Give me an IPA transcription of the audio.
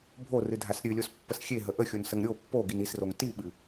bʱ o r ɨ dʱ a s ɾʲ ɨ lʲ o s pː ə s xʲ e ɦ ə ʔ ə xʲ o n s ə ŋ ɾʲ o pː o ɡ i n i s r o ŋ t i ɓ ɨ

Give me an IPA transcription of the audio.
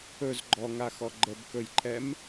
ɵ z ɡ͡ǃ ɔ ŋ a x ɔ ɡ͡ǃ ə b k ɵ j ǃʰ ɛ m

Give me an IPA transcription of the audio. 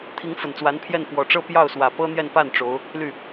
t̪ʰ i˧˥ ŋ f ə˨˩ n t͡s w a˧˥ n pʰ j ɛ˥˩ n f w ɔ˨˩ ʈ͡ʂ ɤ˥ p j ɑ˥˩ ʊ̯ s w ä˨˩ p ɤ˥ n̪ j ɛ˥˧ n p a˥˩ n ʈ͡ʂ o˧˥ ʊ̯ | l y˥˩

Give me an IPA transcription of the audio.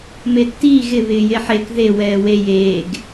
m e tː iː ɣ ɪ β ɪː j e ħ e k ð e w ɛː w e j eː ɡ

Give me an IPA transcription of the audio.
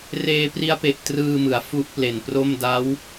r eː˧ p r i˦˥ a̯ p e˨˩ ʔ t r ɯː˧ m ɯ˩˦ a̯ f u˦˥ ʔ p l e˨˩ n p r o˥˩ m d a˦˥ w

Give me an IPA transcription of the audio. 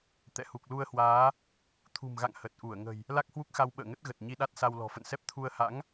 t̪ ɛ̰˧˨ h u˨˩ k̚ l u˧ ə̯ h w aː˨˦ | t̪ʰ ṳ˨˩ m ɣ a̰˧˨ ŋ h ə˨˩ t̚ ʔ u˧˩ ə̯ ŋ ə̤˨˩ j | l a˦˥ k̚ h w u˦˥ k̚ x a˧ w ɓ ə̰ː˧˨ ŋ ə˦˥ t̚ ɣ ə˨˩ t̚ ɲ i˧ ɗ a˦˥ t̚ s a˧ w l ɔ̤˨˩ f ə̰˧˨ n s ɛ˦˥ p̚ t̪ʰ u˧ ə̯ h a̰˧˥ ŋ

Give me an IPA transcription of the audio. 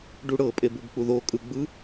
ɖ u ɽ ɤ pʼ e b u b k͡p u ð o kʼ ɯ ɡ͡b ɯ

